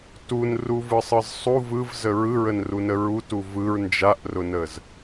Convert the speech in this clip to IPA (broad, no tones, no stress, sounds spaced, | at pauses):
t u n r u v ɯ sˤ ɯ z sˤ u v ɯ v z ə ɹ ɯ ɹ ə n r u n ə ɹ u t u v ɯ ɹ n d͡ʒ a ʔ r ʊ n ə z